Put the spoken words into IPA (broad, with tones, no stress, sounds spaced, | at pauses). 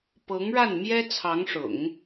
p ɤ˧˥ ŋ ɻ a˥˩ n m j ɛ˥ t͡sʰ ɑ˧˥ ŋ ʂ ʊ̰˨˩˦ ŋ